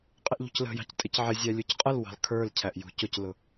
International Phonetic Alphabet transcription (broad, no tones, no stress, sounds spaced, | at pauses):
qʼ ɪ ʔ ʎ ṳ c l ə̤ j ɑ̤ c tʼ ɪ c ʕ ɪ zʲ æ lʲ u c qʼ ə l w ɑ̤ l kʰ ə˞ l cʰ æ ʔ j ṳ c ʊ c l ʊ